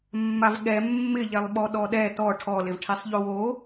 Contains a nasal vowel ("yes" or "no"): no